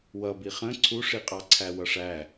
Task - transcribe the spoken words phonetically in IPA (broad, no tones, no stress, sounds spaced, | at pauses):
w ʌ b i χ ə̃ ǀʰ u ʂ i qʼ ɑ ǀʰ æ w ʌ ʂ æ